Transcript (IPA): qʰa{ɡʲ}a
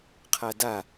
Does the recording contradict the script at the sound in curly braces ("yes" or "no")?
yes